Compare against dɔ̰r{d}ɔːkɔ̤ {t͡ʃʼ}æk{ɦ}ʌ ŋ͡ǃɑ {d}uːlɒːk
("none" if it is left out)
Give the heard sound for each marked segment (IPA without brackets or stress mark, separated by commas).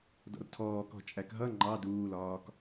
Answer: tʰ, t͡ʃʼ, ɦ, d